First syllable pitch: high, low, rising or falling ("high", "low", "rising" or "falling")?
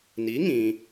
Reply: rising